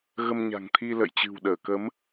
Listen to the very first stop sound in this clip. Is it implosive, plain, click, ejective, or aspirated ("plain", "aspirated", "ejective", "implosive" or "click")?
aspirated